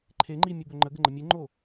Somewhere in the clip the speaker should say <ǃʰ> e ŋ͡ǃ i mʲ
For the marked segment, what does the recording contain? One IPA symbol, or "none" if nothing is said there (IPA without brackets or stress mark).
ǃʰ